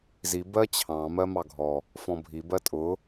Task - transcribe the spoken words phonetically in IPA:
z i b ɜ t͡ɕʰ ɑ̃ m ɜ m ɑ ɡʱ ɔ | f ɔ̃ bʱ i b ɜ tʼ ʊ

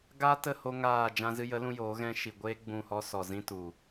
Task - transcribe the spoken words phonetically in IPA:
ɡ aː˦ t ə˦˨ h o˧ ŋ aː˦˨ d͡ʒ ã˦ z ɨ˦ j ə˨˦ l ũ˧ j oː˨˦ ɣ ɛ̃˦ ʃ i˨ ɡʷ eː˦ ɡ͡b ũ˦˨ h ɔ˦ s ɔ˨ z ĩ˧ t u˨

